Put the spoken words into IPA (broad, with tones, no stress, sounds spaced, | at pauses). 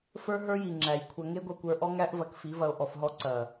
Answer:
f ə˞˦ ɦ ə˞˦ j i˨ ŋ͡ǁ æ˨ j kʷʰ ɐ˧ ŋ e˦ ɡʷ ɐ˧ kʷ ə˞˧ ʔ ɔ˦ ŋ æ˦ ʔ v ɐ˧ k f i˨˦ v ɐ˧ o̯ ʔ ɔ˧ f ɦ ɔ˦ ǀ ɐ˨